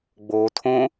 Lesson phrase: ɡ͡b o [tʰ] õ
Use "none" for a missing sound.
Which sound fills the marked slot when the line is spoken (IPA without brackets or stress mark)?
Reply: tʰ